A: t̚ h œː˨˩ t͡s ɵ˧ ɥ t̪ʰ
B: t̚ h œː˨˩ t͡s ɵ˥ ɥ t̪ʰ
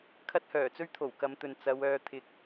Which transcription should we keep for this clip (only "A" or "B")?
B